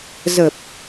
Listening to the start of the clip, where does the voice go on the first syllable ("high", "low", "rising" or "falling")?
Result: low